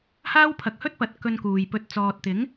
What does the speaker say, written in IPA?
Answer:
haː˥wpʰɐ˨˥k̚hɵ˥t̚pɐ˨˥t̚ kɵ˧nkuː˨jpɵ˧t̚ t͡sɔː˨t̚t̪ɪ˨˥ŋ

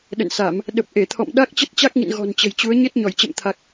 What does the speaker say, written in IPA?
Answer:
ɗə̰˧˨nsa˧˩˨m | ɗə˨˩p̚ʔe˧˩t̪ʰɔ̰˧˨m ɗa˦˥k̚ t͡ɕə˦˥t̚t͡ɕa˦˥k̚ŋḭ˧˨n ɣɔ̤˨˩nt͡ɕə̤˨˩jt͡ɕu˨˦ə̯ ɲe˦˥t̚ɲɔ˧˩jt͡ɕə̰˧˨mt̪ʰa˨˩k̚

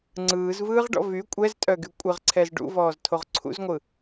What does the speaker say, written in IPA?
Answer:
ŋ͡ǀɯːzvɯːʁɖɔ̰ vy kʷʼɛztʼœɡy kʷʼɪʁǀʰɛz ɖṵvɔːztʰoʁ ǀʰṵzŋʷɯ

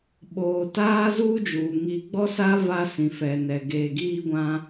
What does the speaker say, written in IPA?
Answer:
ɓoː˨taː˦zuː˦d͡ʒuː˨ ŋi˨ɡ͡bɔ˦sa˦ va˦sĩ˨ fɛ˨nɛ˨ ɡeː˨ɡiː˦ɡʷã˦

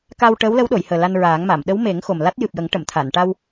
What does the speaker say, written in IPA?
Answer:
ka˧w ʈəː˧˥wlə˧˥wɗo˨˩˨jhəː˨˩ la˧nɹaː˨˩˦ŋma˨˩˨m ɗə˧˥wme˨˩˦ŋ xo˨˩mla˦˥t̚ jɨ˨˩p̚jə˨˩˦ŋ ʈə˨˩˨mt̪ʰa˨˩˨n ʈa˧w

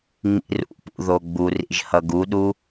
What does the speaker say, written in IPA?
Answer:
ŋ͡mḭrṵpṵ ðoɡ͡burḭʒ hʌɡuɗu

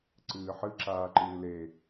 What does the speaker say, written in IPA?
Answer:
ǀɨːħɨǁaːǃɨː le

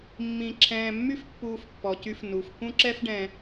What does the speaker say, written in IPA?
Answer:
mːĩ˨ ǁʰɛ̃ː˨ mːy˦fpːuː˨fpːɔ˩cy˨f nu˩f kũ˦ǁɛ˦fɖɛ̃˨

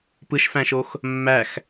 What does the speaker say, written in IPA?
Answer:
pɯʃfæ̃ʃox | mːæx

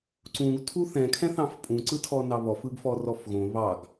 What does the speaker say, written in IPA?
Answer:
ǀũɡ tʰuθɛ̃ kʰɛ̃θɑ̃fpʼũ ǀɯtʰɔnɑβɔf ɯɡfɔrɔfɣõ βɑɡ

